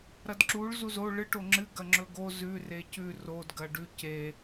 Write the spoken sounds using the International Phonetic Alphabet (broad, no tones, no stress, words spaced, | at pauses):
ɾɐdǁuɭ zuzo ɭɨʈ oŋ͡ǁɨ ɡɐŋ͡ǁɵɡo zʉ recʉ rod ɡɐɖʉ ce